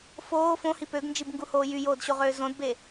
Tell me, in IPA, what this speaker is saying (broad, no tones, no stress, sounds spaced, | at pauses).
f oː f õ h i p ø ɡ n d͡ʒ i b ŋ ɡ u h oː j y j oː d ɕ o ʁ øː z õ d b e